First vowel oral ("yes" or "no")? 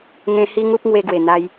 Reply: no